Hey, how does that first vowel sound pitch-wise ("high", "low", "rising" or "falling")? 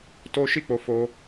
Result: high